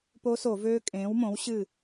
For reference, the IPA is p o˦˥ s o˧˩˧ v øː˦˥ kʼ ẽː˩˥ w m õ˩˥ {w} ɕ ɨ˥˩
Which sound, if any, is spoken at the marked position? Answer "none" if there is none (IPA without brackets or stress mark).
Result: w